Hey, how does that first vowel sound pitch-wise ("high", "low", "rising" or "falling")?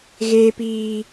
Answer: high